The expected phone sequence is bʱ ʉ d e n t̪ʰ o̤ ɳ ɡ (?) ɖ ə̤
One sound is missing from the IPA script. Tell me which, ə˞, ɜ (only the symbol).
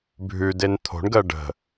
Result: ɜ